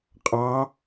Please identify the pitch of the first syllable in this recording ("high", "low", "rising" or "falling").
rising